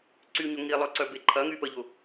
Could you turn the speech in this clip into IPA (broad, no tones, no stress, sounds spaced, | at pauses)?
ǀ y ɲ ʊ ŋ i lˠ œ ǀ œ b e ǃʰ ɐ ŋ y p ə ʎ ʊ